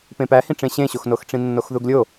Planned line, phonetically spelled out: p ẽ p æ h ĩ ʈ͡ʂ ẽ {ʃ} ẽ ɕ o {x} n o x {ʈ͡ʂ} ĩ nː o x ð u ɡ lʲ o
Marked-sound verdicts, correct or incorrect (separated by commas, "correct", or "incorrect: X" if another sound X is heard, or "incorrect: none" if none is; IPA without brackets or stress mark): incorrect: ɕ, correct, correct